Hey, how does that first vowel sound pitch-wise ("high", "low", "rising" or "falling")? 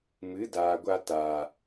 rising